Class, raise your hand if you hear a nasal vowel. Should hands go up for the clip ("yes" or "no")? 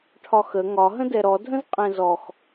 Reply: yes